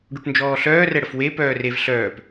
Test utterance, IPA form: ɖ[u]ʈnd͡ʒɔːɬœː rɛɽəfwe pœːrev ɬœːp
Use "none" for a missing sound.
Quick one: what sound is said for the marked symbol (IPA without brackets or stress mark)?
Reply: u